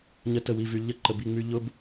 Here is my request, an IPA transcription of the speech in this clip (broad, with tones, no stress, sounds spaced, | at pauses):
ɲ ə˦ t ə˦˨ w i˨ v y˨ ʎ ə˧ ǃ ə˨ b i˦˨ ŋ͡m y˧ ʎ ʊ˦ b